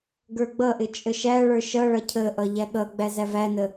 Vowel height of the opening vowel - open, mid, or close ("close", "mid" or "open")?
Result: mid